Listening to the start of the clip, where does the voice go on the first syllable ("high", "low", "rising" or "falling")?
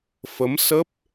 rising